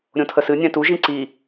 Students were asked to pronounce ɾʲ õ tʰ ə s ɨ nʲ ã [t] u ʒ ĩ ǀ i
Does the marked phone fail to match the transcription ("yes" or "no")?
no